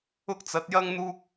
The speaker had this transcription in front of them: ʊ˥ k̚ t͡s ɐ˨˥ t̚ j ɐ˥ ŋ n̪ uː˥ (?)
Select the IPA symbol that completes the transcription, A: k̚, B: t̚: A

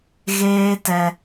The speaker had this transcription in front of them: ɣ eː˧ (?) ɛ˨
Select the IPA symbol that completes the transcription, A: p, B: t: B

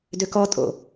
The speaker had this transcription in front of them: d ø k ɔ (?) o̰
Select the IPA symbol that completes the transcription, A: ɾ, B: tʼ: B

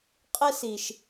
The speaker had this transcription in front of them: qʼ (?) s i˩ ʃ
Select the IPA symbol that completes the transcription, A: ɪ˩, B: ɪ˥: B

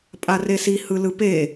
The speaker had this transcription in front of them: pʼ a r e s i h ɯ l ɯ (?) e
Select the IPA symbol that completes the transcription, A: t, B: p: B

